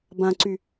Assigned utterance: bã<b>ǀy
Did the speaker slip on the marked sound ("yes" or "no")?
yes